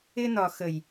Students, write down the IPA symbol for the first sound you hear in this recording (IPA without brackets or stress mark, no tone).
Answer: ɪ